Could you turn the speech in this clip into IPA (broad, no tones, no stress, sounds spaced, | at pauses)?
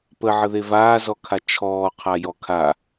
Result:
p ə ʕ ə ð e v aː z ɔ kʰ a t͡ʃʰ ɔː qʰ a j ɔ kʰ a